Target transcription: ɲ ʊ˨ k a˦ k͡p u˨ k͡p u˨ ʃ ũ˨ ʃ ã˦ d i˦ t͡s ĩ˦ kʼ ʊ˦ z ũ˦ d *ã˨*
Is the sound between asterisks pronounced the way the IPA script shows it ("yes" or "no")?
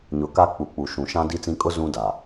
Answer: no